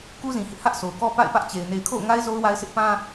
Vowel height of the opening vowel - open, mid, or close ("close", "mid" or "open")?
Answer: close